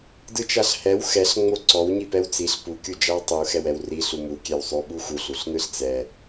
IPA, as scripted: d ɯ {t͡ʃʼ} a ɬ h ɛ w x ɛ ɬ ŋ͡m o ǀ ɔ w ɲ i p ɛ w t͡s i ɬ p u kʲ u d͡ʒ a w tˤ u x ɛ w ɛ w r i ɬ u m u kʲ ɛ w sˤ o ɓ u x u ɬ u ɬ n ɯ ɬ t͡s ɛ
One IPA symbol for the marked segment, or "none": t͡ʃ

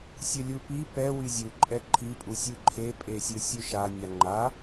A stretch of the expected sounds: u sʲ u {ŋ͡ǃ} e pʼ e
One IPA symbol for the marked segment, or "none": ǃʰ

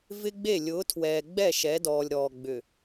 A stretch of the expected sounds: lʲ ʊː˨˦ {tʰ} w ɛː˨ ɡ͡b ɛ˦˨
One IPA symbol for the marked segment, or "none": tʰ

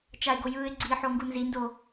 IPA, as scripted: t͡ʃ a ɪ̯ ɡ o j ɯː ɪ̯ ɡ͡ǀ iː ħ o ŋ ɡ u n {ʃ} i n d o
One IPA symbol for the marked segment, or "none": z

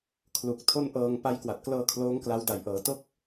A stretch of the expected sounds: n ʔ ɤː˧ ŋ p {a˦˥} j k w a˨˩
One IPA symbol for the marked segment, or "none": a˦˥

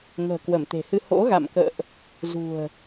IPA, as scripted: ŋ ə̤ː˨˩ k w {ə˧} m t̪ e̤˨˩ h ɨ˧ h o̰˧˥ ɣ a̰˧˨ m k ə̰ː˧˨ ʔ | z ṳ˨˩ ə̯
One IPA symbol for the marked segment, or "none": ə˧˩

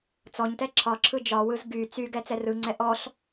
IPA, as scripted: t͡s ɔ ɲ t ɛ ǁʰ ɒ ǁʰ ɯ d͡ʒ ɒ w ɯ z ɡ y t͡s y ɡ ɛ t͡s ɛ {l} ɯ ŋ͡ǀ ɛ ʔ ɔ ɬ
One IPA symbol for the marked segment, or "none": r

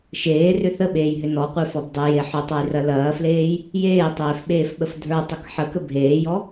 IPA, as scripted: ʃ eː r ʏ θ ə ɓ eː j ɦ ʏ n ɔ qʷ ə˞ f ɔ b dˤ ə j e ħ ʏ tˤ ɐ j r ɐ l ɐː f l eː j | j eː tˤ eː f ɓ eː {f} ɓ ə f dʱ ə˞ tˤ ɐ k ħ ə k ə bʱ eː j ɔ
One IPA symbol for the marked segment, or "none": f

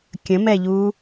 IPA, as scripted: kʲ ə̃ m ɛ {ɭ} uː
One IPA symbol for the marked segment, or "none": ʎ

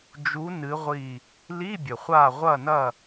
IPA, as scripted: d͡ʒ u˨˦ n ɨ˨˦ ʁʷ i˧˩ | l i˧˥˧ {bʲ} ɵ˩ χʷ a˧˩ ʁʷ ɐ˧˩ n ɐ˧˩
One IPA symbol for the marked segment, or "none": bʲ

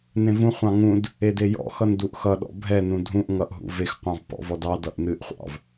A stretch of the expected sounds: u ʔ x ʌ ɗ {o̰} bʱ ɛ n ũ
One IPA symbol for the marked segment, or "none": ɔ̰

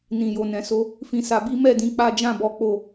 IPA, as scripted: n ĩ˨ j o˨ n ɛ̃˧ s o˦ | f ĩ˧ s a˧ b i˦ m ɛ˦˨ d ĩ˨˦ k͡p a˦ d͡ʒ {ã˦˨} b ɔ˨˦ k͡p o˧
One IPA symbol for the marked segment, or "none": ã˦˨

